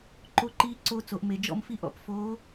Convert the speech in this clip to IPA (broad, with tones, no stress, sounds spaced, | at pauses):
ǃ o˧˥˧ ǃ iː˧˥ ǀ o˧˥˧ t͡s o˩˧ ʔ m e˩˧ d͡ʒ ɔ̰˥˧ m f i˥˧ ʔ ɔ̰˩˧ p f oː˧˥